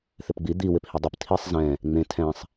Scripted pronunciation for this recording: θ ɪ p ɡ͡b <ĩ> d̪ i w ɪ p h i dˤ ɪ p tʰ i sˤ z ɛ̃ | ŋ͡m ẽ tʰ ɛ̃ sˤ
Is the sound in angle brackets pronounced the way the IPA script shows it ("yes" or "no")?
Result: no